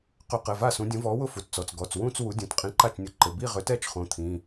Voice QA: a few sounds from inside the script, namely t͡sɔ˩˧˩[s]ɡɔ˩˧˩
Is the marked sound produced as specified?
no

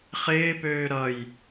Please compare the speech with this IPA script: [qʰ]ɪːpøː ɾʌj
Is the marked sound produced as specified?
no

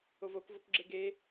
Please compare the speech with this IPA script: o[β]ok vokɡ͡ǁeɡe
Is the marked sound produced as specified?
no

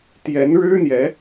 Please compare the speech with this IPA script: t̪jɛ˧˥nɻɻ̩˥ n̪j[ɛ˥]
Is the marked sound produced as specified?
no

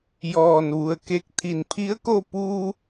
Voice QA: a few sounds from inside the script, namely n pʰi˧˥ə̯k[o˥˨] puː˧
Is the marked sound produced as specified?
yes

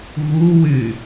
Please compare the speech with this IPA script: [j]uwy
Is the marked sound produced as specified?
no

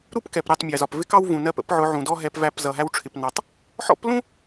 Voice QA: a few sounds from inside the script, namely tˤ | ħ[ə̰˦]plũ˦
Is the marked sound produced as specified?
no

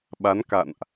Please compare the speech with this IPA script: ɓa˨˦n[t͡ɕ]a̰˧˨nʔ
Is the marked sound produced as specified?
no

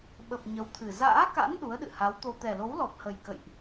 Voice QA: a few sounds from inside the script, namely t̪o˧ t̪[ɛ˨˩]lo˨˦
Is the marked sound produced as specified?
yes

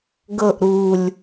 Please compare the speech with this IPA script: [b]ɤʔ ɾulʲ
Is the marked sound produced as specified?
no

